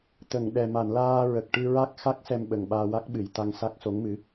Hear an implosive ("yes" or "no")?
yes